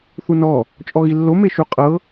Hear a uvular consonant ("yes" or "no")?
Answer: yes